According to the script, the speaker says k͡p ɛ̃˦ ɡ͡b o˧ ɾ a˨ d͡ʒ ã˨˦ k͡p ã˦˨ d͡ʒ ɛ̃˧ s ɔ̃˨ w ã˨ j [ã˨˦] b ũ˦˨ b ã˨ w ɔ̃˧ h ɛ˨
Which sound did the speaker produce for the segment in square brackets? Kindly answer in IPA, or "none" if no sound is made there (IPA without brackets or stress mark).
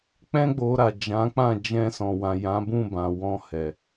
ã˨˦